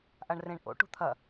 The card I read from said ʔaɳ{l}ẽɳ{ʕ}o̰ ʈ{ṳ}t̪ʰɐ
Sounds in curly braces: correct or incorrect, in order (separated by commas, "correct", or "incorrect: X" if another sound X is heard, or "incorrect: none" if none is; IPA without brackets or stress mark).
incorrect: r, incorrect: ʔ, correct